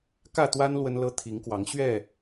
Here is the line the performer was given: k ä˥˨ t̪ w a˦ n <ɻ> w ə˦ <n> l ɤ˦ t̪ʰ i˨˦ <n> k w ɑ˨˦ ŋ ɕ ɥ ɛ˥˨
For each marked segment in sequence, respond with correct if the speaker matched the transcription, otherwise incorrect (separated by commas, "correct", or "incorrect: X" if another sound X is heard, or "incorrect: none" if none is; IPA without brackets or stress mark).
incorrect: l, correct, incorrect: ŋ